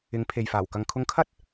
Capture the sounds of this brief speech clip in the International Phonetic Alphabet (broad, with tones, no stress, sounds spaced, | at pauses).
ɪ˨˧ ŋ pʰ e˨ j f aː˨˩ w k ɐ˨ ŋ kʰ ʊ˧ ŋ kʰ ɐ˥ t̚